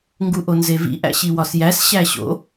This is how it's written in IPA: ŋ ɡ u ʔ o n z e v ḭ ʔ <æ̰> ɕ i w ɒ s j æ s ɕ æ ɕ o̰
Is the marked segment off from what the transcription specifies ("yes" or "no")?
no